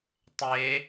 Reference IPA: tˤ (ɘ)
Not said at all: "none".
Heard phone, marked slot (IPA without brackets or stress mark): e